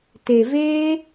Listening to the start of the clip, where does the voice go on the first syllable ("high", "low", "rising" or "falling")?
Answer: low